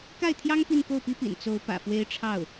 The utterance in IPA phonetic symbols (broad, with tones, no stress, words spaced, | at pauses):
ka˥˩ɪ̯t̪ʰjɑ˥ŋ pi˥˧nko˥˩ʊ̯pi˥pḭ˨˩n t͡so˧˥ʊ̯ pä̰˨˩fwe˥ɪ̯ʈ͡ʂʰɑ˥˩ʊ̯